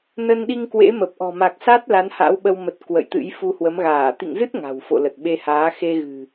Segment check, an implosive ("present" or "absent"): present